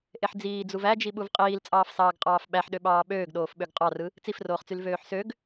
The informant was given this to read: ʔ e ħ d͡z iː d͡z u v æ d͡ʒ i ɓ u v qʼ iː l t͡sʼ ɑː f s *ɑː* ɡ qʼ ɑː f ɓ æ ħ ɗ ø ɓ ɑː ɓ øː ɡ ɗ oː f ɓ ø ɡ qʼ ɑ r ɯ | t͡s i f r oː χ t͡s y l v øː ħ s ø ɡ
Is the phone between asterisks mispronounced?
no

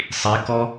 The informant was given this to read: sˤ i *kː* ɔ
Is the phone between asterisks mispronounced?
yes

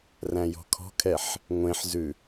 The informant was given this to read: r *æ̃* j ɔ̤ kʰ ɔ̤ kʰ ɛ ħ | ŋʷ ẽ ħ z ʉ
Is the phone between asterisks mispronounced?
no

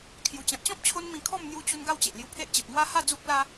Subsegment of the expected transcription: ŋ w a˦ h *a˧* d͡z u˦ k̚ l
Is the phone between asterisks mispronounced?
yes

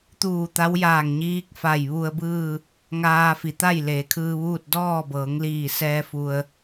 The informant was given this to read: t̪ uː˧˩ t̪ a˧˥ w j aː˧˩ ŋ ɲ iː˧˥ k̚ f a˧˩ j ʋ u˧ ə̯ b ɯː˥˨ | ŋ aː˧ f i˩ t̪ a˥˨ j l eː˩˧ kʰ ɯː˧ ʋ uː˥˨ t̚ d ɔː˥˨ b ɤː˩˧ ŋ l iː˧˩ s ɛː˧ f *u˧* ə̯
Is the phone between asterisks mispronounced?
no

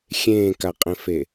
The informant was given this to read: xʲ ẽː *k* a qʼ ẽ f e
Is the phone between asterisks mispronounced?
no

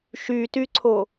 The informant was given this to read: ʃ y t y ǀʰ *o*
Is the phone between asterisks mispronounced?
no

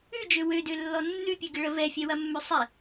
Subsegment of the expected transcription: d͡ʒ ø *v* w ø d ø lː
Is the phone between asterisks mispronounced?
yes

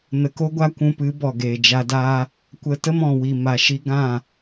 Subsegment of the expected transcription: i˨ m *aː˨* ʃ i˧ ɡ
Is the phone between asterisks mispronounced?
yes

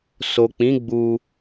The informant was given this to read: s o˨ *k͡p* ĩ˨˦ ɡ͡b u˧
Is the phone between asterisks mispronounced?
no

